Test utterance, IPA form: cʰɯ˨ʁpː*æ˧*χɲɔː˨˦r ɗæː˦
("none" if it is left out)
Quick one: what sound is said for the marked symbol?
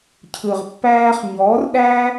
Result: æː˧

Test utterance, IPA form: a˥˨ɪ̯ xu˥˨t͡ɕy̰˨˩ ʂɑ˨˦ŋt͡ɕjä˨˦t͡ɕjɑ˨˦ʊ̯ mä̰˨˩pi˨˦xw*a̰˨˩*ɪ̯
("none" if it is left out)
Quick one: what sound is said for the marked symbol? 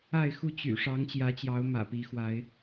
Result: a˨˦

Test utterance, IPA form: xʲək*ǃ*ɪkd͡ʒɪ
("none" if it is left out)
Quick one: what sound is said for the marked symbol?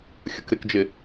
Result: ɾ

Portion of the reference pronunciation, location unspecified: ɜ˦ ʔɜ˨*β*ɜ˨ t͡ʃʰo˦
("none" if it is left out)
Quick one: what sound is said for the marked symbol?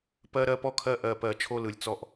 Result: p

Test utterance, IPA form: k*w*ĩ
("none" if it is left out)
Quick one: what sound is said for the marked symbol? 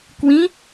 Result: w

